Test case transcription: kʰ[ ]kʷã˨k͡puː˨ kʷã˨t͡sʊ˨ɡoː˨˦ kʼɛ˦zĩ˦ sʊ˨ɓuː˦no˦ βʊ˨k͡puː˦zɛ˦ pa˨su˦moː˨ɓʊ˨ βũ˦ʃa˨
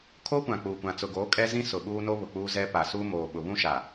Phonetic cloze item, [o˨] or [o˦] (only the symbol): o˦